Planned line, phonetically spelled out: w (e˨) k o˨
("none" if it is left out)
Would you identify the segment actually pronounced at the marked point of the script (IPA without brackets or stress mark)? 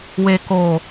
e˨